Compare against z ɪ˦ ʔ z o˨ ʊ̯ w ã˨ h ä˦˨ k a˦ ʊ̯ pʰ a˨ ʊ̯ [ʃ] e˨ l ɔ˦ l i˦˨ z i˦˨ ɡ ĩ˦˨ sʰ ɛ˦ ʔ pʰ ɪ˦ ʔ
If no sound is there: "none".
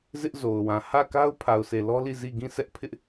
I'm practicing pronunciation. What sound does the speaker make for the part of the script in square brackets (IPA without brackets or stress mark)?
s